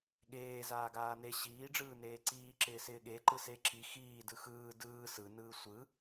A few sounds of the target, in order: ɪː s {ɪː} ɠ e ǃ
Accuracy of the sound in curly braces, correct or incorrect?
correct